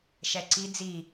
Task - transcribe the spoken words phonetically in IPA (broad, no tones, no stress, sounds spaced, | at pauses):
ʃ ɛ ǀ i d͡z i